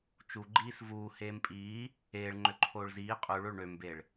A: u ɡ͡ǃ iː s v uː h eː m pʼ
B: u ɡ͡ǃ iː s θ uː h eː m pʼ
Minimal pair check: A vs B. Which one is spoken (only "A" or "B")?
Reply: A